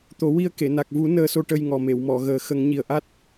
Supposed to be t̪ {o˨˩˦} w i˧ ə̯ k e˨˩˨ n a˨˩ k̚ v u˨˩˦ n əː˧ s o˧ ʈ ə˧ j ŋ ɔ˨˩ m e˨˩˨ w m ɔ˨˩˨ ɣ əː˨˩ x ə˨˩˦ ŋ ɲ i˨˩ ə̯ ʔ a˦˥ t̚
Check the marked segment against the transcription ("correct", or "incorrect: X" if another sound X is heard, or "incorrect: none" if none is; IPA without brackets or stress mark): correct